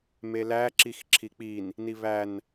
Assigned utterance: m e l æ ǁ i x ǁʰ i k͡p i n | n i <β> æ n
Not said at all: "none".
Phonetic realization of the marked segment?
β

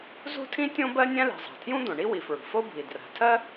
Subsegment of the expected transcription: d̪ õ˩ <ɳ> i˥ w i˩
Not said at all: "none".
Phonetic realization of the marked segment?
ɳ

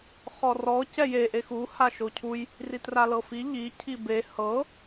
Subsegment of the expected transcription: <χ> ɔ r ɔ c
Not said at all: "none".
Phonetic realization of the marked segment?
χ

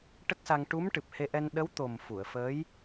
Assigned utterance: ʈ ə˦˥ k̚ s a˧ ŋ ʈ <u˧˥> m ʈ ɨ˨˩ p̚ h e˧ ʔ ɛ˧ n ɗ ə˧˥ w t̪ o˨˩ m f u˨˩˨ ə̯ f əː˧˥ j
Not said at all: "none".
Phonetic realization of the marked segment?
u˧˥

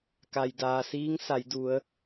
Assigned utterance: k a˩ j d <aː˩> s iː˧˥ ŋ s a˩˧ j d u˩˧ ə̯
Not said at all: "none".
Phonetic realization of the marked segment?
aː˩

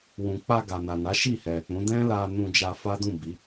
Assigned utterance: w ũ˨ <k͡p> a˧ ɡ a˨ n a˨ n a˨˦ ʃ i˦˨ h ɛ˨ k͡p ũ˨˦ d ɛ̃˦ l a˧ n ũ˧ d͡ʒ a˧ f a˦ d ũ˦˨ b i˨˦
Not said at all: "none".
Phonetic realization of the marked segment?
k͡p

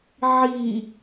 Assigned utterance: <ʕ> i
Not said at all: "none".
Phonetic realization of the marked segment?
ʕ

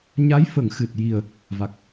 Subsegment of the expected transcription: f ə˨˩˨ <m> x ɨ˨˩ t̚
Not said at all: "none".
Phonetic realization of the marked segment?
ŋ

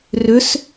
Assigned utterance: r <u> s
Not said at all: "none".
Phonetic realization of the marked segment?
ʏ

